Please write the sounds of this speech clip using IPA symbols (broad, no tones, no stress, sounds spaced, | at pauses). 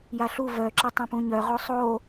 j a ɬ u v œ ǁ a tˤ ɛ̃ p ũ ɲ œ ʁ o sˤ o